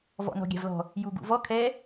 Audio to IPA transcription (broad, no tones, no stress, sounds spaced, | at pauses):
v ɔ̰ n ɔ̤ ɡʲ a̤ v l ɔ̤ | j u ɡ ṵ v ɔ kʰ ɛ